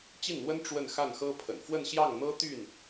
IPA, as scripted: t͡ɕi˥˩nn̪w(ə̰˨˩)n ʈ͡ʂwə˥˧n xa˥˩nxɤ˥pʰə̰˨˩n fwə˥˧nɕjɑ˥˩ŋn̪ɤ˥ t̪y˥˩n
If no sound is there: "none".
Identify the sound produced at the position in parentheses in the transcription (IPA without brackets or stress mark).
ə˥